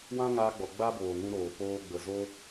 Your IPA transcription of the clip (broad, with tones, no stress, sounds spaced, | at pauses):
w ã˦ ŋ aː˧ ɡ͡b ɔ˨ ɡ͡b a˦ b oː˨ ŋ ũ˧ ɾ oː˨ p oː˧ ɡ͡b ə˨ z o˦